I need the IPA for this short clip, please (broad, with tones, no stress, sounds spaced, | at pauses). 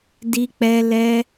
d i˧ k͡p ɛ˧ l ɛ˧